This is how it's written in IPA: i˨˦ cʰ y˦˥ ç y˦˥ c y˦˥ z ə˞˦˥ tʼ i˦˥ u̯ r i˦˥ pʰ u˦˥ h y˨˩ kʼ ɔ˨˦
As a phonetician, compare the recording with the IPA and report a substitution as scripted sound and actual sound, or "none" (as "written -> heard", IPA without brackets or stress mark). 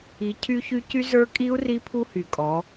tʼ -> kʼ